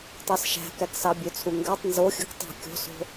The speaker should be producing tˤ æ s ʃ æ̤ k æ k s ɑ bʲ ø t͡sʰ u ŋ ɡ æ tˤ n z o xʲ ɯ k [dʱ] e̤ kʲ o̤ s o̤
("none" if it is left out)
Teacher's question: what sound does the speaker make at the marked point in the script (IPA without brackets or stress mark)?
tˤ